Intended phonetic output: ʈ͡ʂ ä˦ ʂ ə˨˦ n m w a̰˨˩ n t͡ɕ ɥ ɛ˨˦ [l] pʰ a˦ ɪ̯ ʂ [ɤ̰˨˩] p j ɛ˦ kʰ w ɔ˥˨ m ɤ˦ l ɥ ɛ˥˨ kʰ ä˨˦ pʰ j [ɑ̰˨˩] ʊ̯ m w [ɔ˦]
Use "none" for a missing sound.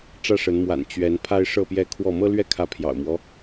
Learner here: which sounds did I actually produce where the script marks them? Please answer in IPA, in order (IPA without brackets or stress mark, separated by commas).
n, ɤ˥˨, ɑ̰˨˩, ɔ˦